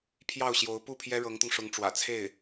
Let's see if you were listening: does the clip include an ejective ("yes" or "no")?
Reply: no